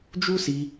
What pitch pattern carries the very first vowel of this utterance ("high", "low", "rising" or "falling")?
high